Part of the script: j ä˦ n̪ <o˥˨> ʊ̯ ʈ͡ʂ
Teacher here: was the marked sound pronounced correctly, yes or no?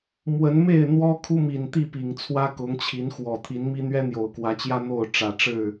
yes